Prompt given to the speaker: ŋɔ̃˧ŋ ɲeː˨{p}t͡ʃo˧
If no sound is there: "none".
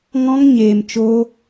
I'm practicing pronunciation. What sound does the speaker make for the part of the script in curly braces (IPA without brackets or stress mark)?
m